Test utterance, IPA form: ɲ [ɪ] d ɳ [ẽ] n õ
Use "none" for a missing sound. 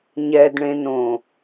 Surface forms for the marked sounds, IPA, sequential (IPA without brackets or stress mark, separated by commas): ɛ, ẽ